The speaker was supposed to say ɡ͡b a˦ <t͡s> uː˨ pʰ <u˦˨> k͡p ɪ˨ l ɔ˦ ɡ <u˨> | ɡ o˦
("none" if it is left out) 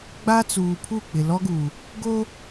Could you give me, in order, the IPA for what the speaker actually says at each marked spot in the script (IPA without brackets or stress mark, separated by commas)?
t͡s, u˦˨, uː˨